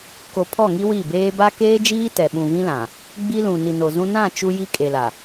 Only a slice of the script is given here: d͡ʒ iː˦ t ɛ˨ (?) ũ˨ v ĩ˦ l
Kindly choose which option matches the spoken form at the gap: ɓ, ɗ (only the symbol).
ɓ